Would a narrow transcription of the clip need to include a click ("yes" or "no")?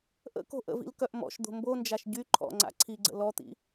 yes